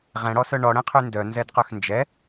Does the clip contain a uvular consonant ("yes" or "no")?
yes